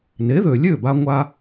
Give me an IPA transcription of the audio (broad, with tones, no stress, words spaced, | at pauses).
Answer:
ne˩˥ðø˩lʲø˥˩ba˧ ŋʷa˧